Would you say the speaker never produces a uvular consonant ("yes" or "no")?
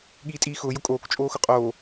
no